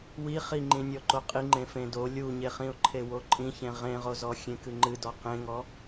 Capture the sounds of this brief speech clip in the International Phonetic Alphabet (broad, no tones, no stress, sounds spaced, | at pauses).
w i χ i ŋ͡ǃ ĩ nʲ ɔ ǃ o qʼ i ŋ͡ǃ ẽ f ẽ d o lʲ u ɲ e χ ĩ ʊ̯ ǃʰ e w o ǃʼ ĩ ç ẽ ʁ ẽ ʁ o z ɔ xʲ ẽ k ɨ ŋ͡ǃ ɨ d ɔ q ẽ ŋ ɔ